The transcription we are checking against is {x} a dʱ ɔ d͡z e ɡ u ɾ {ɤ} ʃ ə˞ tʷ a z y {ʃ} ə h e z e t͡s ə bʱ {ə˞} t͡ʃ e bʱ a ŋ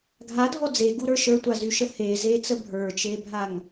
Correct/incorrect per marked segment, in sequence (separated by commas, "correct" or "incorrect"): incorrect, incorrect, correct, correct